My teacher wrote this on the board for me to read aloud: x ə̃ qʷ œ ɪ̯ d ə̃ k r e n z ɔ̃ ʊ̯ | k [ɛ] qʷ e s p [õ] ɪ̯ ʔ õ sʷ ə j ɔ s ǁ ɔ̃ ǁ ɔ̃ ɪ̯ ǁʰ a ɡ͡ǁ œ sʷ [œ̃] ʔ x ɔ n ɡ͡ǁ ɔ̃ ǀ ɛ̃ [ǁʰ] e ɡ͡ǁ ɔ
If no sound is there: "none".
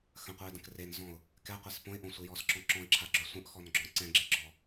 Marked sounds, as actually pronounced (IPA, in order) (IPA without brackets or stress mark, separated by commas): ɛ, õ, œ̃, ɡ͡ǁ